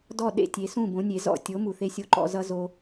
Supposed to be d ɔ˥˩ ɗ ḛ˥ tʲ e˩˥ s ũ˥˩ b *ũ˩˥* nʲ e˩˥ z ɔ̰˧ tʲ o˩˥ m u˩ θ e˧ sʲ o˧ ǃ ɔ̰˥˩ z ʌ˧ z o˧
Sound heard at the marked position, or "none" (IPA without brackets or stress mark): õ˩˥